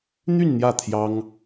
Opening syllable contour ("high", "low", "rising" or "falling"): falling